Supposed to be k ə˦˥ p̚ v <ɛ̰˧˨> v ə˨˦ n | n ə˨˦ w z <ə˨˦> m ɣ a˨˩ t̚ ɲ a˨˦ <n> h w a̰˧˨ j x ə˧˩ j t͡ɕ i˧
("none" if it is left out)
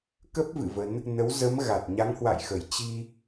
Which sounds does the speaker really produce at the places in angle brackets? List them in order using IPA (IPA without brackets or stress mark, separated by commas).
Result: ɨ̰˧˨, ə˨˦, ŋ